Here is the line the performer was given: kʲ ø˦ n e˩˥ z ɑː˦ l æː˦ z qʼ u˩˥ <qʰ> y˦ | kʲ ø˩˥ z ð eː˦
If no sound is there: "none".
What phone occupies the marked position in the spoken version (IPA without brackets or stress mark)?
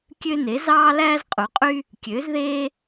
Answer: qʼ